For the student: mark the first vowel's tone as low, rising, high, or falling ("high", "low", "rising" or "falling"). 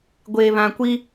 low